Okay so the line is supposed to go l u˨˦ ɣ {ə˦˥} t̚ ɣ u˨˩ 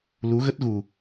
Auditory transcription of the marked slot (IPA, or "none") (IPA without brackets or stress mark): ə˦˥